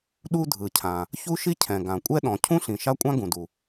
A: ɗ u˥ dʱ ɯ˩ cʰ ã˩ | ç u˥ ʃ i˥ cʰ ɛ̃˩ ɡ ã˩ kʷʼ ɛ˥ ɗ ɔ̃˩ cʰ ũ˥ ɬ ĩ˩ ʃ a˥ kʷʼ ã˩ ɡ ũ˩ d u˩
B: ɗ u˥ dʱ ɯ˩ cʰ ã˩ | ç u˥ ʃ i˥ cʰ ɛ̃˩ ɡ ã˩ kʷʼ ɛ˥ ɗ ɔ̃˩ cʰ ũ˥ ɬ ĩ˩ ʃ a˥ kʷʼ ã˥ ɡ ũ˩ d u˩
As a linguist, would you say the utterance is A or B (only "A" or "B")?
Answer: B